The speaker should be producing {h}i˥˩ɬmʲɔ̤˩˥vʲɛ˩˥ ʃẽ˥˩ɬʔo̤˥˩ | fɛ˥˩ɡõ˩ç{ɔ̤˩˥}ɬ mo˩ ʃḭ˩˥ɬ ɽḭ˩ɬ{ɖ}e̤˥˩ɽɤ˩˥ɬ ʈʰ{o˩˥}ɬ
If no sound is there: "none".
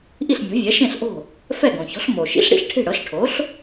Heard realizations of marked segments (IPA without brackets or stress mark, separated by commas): ʔ, ɔ̤˩˥, ʈʰ, o˩˥